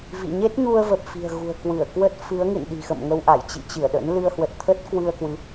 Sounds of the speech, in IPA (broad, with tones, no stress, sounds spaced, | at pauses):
v ḭ˧˨ ɲ e˦˥ t̚ ɲ u˧ ə̯ v ə˨˩ p̚ f i̤˨˩ ə̯ ɣ ṳ˨˩ ə̯ k w ɨ˧˩ ə̯ k w ə˦˥ t̚ f ɨ˨˦ ə̯ ŋ ɨ̰˧˨ n ɗ i̤˨˩ x ə̰˧˨ m ŋ ə˧ w ʔ a˧˩ j t͡ɕ ḭ˧˨ t͡ɕ ɨ˧˩ ə̯ ɗ ə̰˧˥ n l ɨ˧ ə̯ h w ə˨˩ t̚ t̪ʰ ə˦˥ t̚ k w ɨ˧ ə̯ k w ɨ˨˦